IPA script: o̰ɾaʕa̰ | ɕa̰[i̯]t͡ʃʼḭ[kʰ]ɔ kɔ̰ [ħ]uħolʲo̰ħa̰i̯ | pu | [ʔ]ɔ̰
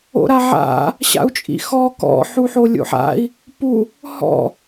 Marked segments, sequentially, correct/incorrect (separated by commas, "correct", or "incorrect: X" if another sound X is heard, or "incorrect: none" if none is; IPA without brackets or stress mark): incorrect: u̯, incorrect: x, correct, incorrect: h